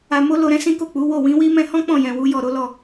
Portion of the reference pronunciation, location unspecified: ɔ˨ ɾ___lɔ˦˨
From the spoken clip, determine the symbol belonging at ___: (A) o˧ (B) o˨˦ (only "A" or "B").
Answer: B